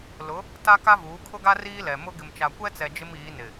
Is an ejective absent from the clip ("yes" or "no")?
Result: yes